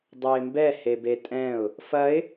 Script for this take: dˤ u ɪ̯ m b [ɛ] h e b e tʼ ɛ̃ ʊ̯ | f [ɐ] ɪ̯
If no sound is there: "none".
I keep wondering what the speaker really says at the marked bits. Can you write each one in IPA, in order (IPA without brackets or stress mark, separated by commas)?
ɛ, ɐ